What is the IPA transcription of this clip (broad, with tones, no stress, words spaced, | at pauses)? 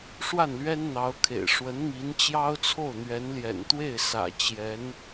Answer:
ʂwa˥˩nlɥɛ˥nn̪ɑ˧˥ʊ̯kʰḛ˨˩ɪ̯ ʂwə˧˥nmi˧˥n t͡ɕjɑ˥ʊ̯t͡sʰo˥˩ʊ̯ n̪ɥɛ˧˥nljɛ̰˨˩nt̪we˥˩ɪ̯ sä̰˨˩ t͡ɕjɛ˧˥n